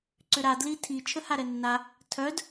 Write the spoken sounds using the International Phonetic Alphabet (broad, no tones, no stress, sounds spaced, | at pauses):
ǀ ʏ ɾ a d l i tʰ i t͡ʃʰ ə h a ɾ ɛ nː a | tʰ œ d